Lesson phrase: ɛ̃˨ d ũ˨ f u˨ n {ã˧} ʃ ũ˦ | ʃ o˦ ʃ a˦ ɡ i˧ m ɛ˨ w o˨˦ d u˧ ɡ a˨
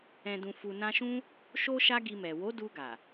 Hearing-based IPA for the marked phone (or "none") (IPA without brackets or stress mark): ã˧